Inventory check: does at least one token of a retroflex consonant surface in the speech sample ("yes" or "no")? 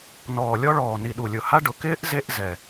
yes